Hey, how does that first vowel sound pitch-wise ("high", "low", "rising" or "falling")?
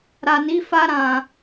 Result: low